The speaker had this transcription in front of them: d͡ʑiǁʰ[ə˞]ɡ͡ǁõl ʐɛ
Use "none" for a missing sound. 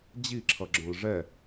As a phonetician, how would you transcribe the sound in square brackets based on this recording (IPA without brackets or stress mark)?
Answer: ʌ